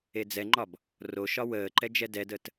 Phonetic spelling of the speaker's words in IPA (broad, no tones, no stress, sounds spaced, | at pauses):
e d͡z ɛ ŋ͡ǃ ɒ b | r o ʃ ɒ w əː ǃ ɛ d͡ʒ ɛ d ɛ d ə t